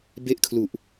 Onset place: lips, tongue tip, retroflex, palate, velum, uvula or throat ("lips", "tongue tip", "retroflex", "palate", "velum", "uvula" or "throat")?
lips